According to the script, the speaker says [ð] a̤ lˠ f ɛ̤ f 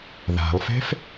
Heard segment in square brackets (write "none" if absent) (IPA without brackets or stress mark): ð